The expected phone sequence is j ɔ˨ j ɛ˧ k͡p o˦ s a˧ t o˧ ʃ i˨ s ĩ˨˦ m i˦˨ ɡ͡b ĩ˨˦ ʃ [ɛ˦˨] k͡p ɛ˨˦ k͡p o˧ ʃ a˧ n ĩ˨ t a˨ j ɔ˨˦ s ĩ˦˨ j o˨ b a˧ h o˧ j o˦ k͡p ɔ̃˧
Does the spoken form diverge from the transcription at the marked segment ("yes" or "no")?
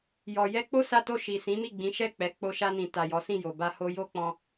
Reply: no